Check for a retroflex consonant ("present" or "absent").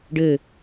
present